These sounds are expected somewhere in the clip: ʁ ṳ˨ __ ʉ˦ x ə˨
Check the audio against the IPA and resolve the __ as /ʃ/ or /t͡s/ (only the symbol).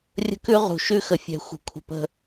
ʃ